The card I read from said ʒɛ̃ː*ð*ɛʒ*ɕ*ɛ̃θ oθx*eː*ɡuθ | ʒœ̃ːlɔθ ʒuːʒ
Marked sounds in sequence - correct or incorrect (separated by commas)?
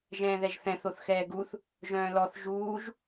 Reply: correct, incorrect, incorrect